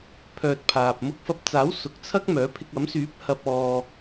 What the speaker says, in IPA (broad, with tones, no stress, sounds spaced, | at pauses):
pʰ œː˧ t̚ pʰ aː˨ p̚ m ʊ˧ k̚ f ɐ˧ p̚ t͡s aː˨˥ w s ʊ˨ k̚ t͡sʰ ɐ˥ k̚ m œː˨˥ pʰ ɪ˧ k̚ ɐ˨˥ m s yː˨˥ p̚ h ɐ˨ p̚ ɔː˨